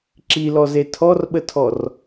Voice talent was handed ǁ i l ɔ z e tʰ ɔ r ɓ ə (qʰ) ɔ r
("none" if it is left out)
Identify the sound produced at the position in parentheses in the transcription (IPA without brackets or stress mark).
tʰ